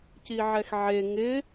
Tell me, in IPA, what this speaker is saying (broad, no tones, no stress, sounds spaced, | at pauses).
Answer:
c i ʕ ɛ x ʕ e ŋ ɪ